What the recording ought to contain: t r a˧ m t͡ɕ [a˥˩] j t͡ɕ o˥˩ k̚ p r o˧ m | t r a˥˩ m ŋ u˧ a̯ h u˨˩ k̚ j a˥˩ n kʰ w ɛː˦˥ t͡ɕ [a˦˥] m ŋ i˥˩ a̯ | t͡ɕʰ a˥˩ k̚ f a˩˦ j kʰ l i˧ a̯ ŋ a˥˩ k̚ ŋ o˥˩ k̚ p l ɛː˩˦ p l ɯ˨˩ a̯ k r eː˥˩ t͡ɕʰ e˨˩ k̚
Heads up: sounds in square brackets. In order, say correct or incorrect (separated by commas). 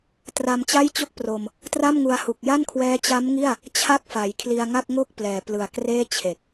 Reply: correct, correct